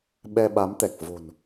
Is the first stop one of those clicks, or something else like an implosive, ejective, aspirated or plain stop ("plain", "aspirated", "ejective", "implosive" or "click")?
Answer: implosive